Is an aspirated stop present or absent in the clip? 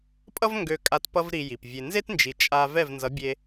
absent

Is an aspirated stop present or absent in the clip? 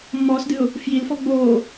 absent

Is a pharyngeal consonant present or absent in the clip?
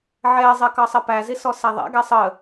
present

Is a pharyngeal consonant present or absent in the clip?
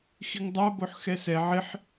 present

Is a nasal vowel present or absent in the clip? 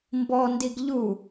absent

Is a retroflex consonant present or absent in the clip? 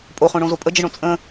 present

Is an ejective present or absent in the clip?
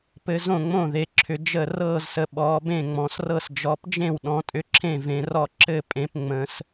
present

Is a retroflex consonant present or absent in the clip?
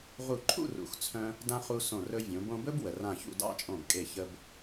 absent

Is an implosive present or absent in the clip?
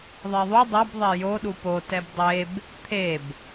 present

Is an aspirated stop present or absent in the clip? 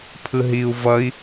present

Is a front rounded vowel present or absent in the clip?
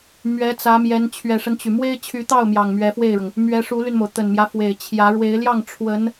present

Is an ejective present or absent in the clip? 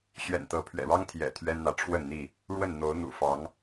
absent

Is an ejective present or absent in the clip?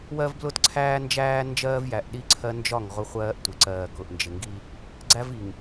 absent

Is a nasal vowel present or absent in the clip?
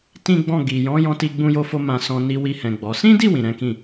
present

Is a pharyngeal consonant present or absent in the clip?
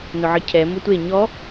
present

